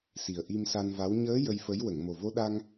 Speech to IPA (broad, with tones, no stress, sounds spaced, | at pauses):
s i˨˩ ə̯ ʔ i˧ m s a˧ n v a˧˥ w ɲ əː˧˥ j ə˧ j f ə˧˥ j w ə˨˩˨ ŋ m o˨˩ v o˧˥ ɗ a˧ ŋ